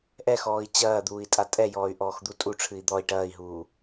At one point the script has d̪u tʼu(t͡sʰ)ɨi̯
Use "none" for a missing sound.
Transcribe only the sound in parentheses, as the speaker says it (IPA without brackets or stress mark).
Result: ʈ͡ʂʰ